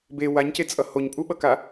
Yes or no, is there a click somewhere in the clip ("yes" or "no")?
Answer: no